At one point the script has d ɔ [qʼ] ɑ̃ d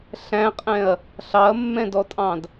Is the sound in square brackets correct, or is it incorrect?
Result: incorrect: tʼ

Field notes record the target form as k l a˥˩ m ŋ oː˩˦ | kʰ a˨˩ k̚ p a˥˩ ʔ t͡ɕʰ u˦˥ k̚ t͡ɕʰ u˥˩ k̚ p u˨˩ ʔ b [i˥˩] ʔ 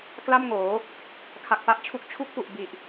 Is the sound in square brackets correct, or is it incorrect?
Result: incorrect: i˨˩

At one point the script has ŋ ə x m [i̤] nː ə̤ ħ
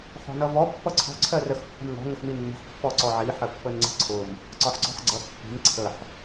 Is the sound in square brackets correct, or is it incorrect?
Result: incorrect: i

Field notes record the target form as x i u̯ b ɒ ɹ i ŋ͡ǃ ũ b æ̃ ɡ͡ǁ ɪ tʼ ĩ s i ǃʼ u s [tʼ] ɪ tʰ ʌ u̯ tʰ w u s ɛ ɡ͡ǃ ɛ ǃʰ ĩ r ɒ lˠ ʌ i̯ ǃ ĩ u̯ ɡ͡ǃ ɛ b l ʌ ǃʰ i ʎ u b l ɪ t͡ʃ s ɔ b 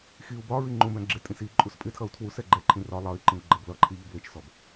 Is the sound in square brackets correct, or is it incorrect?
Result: incorrect: pʼ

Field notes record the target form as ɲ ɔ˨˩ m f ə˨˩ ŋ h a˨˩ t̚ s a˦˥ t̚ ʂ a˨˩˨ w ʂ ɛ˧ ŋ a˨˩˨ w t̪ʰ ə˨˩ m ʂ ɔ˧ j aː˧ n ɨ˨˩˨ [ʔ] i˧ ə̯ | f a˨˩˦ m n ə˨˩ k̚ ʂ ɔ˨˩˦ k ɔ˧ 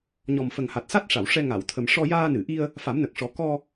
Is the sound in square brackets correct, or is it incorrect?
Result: correct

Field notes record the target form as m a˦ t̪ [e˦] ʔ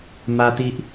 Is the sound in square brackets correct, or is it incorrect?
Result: incorrect: i˦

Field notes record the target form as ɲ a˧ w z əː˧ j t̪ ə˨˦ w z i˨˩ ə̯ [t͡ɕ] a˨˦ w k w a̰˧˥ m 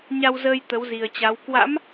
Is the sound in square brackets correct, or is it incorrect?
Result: correct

